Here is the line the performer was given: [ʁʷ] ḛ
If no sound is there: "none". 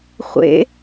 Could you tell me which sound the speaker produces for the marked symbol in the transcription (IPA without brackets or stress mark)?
χʷ